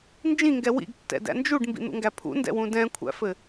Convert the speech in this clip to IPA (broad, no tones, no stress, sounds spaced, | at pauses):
n d͡ʒ ĩ ŋ ɡ ɛ w ḭ ɡ tː ɛ̰ d æ̰ n d͡ʒ u ɖ m b ḭ n̪ ṵ ŋ ɡ æ pʰ ṵ n d ɛ̰ w ũ d ɛ̃ kʷʰ æ̰ f ɘ